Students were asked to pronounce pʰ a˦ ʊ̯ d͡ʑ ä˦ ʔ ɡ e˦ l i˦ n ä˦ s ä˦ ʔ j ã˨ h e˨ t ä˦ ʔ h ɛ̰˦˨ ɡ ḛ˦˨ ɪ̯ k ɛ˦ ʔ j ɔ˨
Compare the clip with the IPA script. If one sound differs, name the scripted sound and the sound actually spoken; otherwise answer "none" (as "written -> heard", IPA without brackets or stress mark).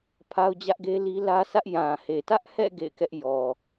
n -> l